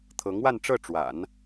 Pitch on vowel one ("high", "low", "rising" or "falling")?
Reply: rising